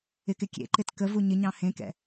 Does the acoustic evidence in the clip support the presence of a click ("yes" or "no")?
yes